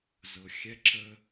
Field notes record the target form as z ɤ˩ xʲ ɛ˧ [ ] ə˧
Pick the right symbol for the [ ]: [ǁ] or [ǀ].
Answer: ǁ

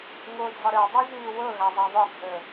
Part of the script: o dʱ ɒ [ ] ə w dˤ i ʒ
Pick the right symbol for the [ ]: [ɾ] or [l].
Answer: ɾ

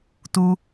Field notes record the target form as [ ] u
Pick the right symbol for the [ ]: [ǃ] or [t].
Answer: t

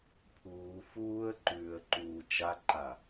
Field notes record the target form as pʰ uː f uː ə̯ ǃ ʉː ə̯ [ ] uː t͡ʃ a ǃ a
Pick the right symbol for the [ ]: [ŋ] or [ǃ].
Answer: ǃ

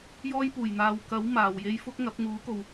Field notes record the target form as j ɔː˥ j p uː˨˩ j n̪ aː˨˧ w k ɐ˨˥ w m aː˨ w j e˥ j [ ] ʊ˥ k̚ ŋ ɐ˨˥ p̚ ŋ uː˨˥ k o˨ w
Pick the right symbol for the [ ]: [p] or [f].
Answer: f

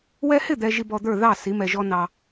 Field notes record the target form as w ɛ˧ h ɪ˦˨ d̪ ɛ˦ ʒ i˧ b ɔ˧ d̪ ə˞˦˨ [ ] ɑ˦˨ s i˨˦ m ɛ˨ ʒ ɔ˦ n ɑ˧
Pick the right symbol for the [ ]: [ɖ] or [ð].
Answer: ð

